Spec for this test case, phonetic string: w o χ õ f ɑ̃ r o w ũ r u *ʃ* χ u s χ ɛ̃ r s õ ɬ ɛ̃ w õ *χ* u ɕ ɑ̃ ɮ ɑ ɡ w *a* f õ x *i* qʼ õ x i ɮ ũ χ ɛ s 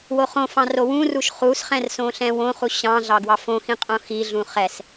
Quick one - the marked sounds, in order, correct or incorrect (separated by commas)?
correct, correct, incorrect, incorrect